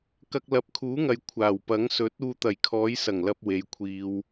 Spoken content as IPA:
k ɐ˧ k̚ l ɐ˨˥ p̚ kʰ uː˨˥ ŋ ɐ˨ j kʷʰ aː˨˩ w p ɐ˨˥ ŋ s ɵ˨˥ t̚ uː˧ t̪ ɐ˨˩ j kʰ ɔː˨˧ j s ɐ˨˩ ŋ l ɐ˧ p̚ w e˨˧ j kʷʰ iː˧ w

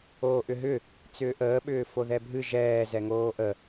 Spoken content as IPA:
oː ʔ ʏ ɦ ʏ | t͡s ʏː ʔ əː ɓ ʏː f o ð ɛ bʱ ɨ ʒ ɛː z ɛ ŋ oː ʔ ə

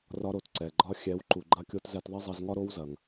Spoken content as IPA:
r ɒ˦ ɾ o˨ t ǀ ɛ˨ ɡ͡ǃ ɒ˧ xʲ ɛ˨˦ w ǃ u˨ ɡ͡ǃ ɐ˦ kʲ o˦ t z ɛ˧ t ðˤ ɐ˦ zˤ ɐ˧ z ŋ ɒ˦ ɾ o˦ w z ɐ˨ ŋ

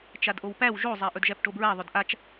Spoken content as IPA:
t͡ʃ a d ʔ o w p æ w ʒ o zˤ æ ʔ ɵ d ʒ æ p ʈ o b ɹ æ ðˤ ɵ d ʔ a t͡ʃ

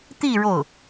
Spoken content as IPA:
t̪ i˥˧ ɻ o˥˩ ʊ̯

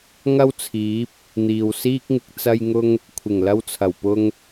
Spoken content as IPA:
ŋ ɐ˥ w t͡sʰ iː˨˥ p̚ | n̪ iː˨ w s iː˥ k̚ ŋ ɪ˧ k̚ t͡s ɐ˧ j ŋ ʊ˧ ŋ | kʷʰ ɪ˨˩ ŋ l ɐ˧ w t͡sʰ ɐ˨˩ w p ʊ˧ ŋ

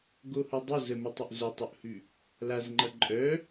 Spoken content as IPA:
ɡ o h ʊ dˤ ʊ z ə m ə tˤ ʊ ʔ z œ tˤ o ʔ h ʉ | l a z ŋ͡ǃ ʌ ǃʼ œ

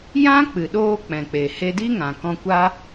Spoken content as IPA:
j ã˦ k͡p ɨ˨ ɗ oː˧ k͡p ɛ̃˨ k͡p e˨ h e˧ d i˦ ŋ ã˨ k ɔ̃˧ kʷ a˦

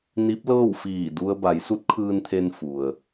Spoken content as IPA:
n i˧˥ p̚ l ɤː˥˨ w f iː˧˩ d u˧ ə̯ b a˩˧ j s u˧˥ t̚ kʰ ɯː˧ n t̪ʰ e˧ n f u˩ ə̯

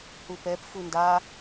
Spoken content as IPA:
h u p ɛ p f u n d a

